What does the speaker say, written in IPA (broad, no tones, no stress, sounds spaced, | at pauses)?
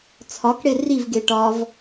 t͡sʰ ɒ k ɽ e r i v ɡ e ʈ ɒ v